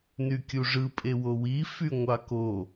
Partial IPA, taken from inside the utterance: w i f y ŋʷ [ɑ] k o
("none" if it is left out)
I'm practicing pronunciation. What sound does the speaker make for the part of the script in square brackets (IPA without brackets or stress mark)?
ɑ